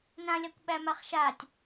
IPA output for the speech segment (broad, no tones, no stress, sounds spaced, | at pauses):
n ã lʲ a kʷ ɓ æ m a χ ʃ a tʲ